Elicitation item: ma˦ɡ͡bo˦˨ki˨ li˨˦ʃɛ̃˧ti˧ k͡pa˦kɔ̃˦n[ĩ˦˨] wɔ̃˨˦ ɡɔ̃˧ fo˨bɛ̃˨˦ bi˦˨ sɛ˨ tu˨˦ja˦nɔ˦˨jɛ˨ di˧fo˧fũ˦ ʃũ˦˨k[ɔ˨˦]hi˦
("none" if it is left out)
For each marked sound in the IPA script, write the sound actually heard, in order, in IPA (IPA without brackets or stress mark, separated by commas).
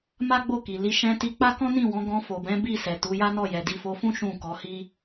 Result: ĩ˦˨, ɔ˨˦